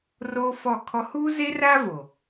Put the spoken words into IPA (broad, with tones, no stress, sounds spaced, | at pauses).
r oː˦ f ɔ˦˨ kʰ ɔ˦ h uː˦ z e˦ r aː˦ v o˨